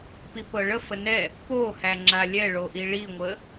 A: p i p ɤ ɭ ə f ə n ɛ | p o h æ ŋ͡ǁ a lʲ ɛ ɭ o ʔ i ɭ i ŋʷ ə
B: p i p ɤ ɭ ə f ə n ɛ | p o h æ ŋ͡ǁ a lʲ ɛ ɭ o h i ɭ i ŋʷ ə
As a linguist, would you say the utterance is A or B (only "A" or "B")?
A